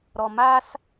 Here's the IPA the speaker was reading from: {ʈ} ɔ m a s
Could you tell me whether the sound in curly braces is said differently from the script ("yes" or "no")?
yes